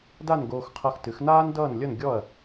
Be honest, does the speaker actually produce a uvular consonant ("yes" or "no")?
yes